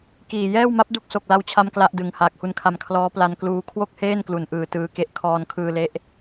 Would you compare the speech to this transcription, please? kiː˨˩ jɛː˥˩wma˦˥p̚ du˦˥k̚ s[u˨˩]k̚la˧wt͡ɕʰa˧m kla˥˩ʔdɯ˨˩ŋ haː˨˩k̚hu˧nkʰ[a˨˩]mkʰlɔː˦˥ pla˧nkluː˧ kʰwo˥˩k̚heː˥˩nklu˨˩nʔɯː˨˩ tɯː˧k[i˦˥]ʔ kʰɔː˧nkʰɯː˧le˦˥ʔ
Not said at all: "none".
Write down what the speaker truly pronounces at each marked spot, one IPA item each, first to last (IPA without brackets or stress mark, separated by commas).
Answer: o˨˩, a˧, e˦˥